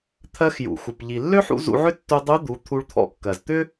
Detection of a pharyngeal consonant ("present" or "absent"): present